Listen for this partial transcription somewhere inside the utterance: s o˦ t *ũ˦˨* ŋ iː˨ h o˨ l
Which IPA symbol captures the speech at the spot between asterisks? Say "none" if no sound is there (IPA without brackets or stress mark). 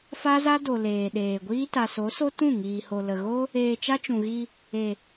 ũ˦˨